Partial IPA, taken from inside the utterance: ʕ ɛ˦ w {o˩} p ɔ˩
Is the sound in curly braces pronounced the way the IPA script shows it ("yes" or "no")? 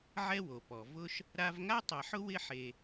yes